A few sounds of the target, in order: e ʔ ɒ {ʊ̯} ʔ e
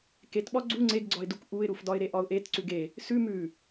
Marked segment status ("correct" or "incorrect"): correct